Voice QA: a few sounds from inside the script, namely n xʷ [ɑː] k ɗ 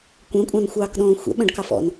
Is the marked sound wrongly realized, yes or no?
no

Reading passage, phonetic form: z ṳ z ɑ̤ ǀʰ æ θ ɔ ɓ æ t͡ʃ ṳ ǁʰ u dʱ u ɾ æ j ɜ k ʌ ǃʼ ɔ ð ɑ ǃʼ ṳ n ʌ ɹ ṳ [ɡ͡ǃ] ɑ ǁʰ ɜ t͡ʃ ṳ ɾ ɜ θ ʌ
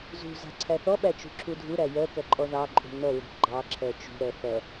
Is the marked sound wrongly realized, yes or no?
no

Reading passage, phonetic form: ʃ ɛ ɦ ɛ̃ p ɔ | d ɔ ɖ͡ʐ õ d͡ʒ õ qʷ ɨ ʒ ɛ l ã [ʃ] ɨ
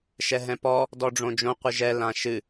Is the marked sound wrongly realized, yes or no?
no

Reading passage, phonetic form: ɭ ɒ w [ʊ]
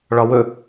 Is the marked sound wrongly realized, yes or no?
yes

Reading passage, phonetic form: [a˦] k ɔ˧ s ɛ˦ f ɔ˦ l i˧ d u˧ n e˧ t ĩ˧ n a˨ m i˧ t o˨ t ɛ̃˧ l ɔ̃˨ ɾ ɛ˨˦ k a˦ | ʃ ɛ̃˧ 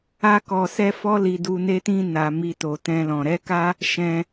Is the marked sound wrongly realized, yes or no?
no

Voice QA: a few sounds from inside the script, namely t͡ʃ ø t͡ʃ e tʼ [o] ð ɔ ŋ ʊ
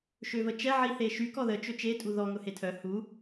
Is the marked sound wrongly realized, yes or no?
yes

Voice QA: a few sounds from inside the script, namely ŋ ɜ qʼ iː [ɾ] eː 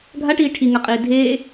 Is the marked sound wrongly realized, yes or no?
yes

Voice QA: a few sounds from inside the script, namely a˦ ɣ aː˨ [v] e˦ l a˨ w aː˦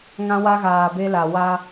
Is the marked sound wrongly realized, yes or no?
yes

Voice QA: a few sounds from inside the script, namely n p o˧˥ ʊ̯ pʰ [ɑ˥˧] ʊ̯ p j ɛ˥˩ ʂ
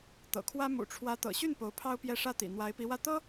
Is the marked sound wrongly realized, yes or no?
yes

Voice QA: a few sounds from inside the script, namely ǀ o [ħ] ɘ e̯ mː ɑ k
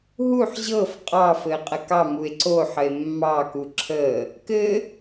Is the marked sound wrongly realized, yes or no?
no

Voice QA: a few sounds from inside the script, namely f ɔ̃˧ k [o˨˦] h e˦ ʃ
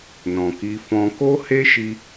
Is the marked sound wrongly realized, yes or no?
yes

